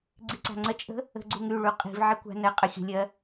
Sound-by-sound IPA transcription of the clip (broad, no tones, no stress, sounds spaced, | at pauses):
ɡ͡ǀ i ǀ a̤ ŋ͡ǀ ə t͡ʃʼ ə̤ | ə̤ ɡ͡ǀ u ŋ y ɭ u qʼ i̤ v ʕ i kʷ a̤ n ɜ qʼ ə xʲ ə̤ lʲ ɜ